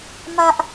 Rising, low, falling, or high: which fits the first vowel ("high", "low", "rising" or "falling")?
high